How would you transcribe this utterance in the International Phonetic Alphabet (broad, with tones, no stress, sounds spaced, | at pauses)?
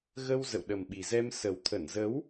ɣ ə˧ w z ə̰˧˨ w ɗ ə˨˩ m ɓ i˨˩ z ɛ˧ m s ə˨˩ w t̪ʰ ə˧˩ n z ə˨˦ w